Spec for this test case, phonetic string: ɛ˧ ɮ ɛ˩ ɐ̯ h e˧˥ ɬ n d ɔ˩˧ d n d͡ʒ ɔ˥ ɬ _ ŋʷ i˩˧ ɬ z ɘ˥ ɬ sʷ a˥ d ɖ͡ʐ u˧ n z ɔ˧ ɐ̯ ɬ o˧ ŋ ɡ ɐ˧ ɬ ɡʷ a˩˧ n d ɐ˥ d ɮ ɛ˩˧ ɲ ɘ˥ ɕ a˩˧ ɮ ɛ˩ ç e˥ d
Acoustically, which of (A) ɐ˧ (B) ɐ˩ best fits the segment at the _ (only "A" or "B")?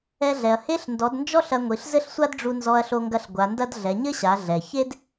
A